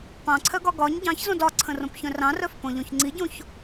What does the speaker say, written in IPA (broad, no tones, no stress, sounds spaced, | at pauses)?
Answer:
p ɑ̃ ǀʰ œ ɡ ɒ ɡ ɒ ɲ ɟ ɑ̃ ç z õ d ɒ ǀʰ ə̃ r õ p ç œ̃ r ɑ̃ r œ f p õ ʎ õ ç ŋ͡ǀ i ɟ õ ç